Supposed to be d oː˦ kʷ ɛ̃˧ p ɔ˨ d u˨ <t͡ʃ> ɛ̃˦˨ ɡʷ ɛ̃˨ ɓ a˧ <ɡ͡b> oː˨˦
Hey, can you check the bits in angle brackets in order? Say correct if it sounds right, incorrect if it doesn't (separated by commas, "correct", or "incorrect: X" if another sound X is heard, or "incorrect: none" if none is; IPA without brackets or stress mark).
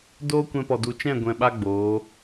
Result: correct, correct